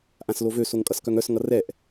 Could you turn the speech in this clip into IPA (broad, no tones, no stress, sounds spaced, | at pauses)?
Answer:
ʔ ã s l o v ø s o ŋ kʼ ʌ s k œ ŋ œ s ŋ ʌ r ɛ ʔ